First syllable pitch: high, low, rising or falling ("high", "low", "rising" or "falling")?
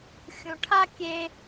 low